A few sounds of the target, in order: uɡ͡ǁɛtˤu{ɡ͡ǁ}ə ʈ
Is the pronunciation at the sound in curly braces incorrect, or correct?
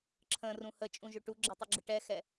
correct